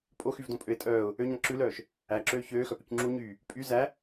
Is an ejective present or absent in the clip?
present